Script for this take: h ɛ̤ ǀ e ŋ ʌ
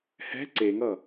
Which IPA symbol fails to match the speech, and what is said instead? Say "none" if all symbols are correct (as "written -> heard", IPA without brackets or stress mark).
none